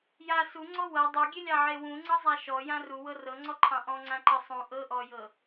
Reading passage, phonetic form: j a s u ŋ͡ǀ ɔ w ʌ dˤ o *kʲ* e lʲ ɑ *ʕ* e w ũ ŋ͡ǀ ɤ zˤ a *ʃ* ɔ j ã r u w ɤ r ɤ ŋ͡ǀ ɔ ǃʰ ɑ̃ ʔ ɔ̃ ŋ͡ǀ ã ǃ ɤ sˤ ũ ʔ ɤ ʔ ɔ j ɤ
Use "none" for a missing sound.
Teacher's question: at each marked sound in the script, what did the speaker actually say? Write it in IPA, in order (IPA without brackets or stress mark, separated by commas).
ɡʲ, ʕ, ʃ